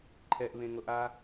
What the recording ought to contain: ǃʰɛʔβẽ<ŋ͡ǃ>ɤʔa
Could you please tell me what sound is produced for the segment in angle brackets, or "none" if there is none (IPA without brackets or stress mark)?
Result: ŋ